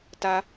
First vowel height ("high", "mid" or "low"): low